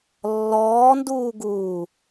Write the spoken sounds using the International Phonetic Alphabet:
lː ɔː n d uː ɡ uː

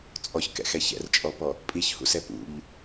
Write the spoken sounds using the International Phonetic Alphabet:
t͡sʼ ɔ ç k ɛ̰ x ɛ ç ɛ̰ r t͡ʃʼ ɔ p ɔ | pʼ i ç h ṵ s ɛ p ṵ ʎ

